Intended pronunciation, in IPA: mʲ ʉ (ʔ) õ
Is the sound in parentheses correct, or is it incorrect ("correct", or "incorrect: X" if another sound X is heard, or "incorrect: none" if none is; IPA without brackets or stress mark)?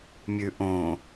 correct